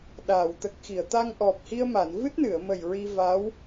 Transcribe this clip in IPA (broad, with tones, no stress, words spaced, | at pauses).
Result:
ɗaː˨˩˨wt̪ə˨˩k̚ xi˨˩˨ə̯t̪a˧ŋʔɔ˨˩p̚ hi˧ə̯ma˨˩˨n vɨ˦˥t̚nɨ˨˩˨ə̯mə˨˩j ɹi˧va˧˥w